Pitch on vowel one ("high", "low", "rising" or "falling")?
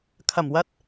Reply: low